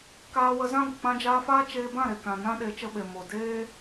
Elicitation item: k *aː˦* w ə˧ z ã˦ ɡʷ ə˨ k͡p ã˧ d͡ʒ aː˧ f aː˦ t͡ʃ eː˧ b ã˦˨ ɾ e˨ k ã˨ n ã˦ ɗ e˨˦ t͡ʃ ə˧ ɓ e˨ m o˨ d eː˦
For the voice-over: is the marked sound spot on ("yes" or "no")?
no